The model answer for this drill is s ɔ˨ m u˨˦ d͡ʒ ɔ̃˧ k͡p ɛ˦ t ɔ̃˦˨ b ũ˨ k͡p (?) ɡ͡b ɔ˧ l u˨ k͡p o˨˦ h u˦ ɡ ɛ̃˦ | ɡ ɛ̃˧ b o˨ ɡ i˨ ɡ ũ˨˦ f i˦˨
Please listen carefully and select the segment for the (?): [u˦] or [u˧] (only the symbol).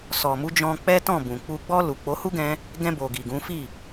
u˧